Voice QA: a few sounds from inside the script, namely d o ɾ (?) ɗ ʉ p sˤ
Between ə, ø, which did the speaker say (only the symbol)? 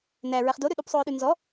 ø